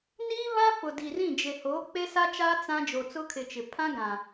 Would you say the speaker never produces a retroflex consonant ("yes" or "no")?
yes